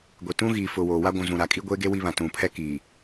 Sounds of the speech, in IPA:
ɡʷ e˨ t ũ˦ ɣ iː˨ f ʊ˨ w oː˨ w a˦ ɡʷ ũ˨ z ũ˨ ɾ a˨ kʼ i˦ ɡʷ e˦ ɡ e˦ w i˦ β ã˨ t ũ˨ pʰ ɛ˦ k iː˨

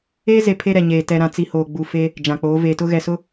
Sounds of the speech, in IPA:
eː˦ z e˨ pʰ e˦ ɾ ɛ˨ ɲ eː˨ t ɛ˨ ɾ ã˨ t͡s i˨ h oː˨ ɡ͡b u˨ f e˦ | d͡ʒ ã˨ k͡p oː˨˦ v eː˨ t ʊ˦ ɣ ɛ˨ s ʊ˦

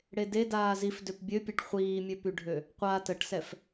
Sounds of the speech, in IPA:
ɽ e d e d aː z i f d ø p bʲ ø pʲ ɛ ʈ χʷ iː mʲ ø p y ɖʱ ø | qʷ a t ə ʈ s ɛ f

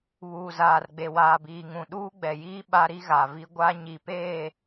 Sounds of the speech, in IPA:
β uː˨ z aː˨ r ɡ͡b e˨ w aː˨ b iː˨ ŋ ũ˨ ɗ uː˦ ɡ͡b ɛ˨ j iː˦ ɓ a˦ ɾ i˦ ɣ a˨ v i˦ ɡʷ a˦ ɲ i˨ p eː˦˨

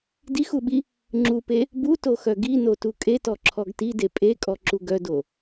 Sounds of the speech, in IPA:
d i x u ɓ i | ŋ͡ǁ u p e | b u t o x œ ɡ i n o t u kʼ e t ɔ ǁʰ ɔ ɡ t i d e pʼ e kʼ ɔ ǁ u ɡ œ d o

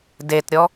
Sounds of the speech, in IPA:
d e t ɾʲ ɔ

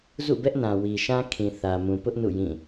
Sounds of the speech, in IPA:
z ṵ˦˨ b ɛ˦ ʔ n ã˨ w i˨ ʃ ã˦ kʰ ĩ˨ θ ä˨ m ũ˨ p ʊ˦ ʔ n ṵ˦˨ j ĩ˦˨

